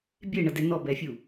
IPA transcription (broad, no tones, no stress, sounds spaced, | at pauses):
bʲ e ɳ ɐ d ɛ n ɔ b ɛ fʲ u